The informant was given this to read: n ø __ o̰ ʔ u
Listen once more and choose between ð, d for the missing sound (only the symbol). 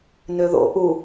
ð